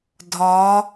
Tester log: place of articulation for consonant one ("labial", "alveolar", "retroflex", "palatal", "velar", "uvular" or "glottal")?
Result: alveolar